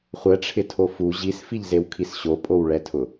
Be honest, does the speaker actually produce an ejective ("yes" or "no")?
yes